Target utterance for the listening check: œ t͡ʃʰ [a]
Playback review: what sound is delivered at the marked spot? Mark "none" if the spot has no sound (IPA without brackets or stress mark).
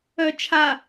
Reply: a